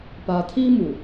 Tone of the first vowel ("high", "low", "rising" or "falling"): low